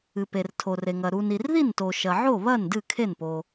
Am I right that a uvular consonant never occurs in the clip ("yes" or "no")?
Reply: yes